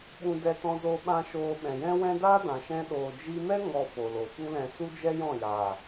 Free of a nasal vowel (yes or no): no